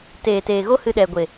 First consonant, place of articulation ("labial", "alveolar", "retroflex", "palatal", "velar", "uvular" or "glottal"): alveolar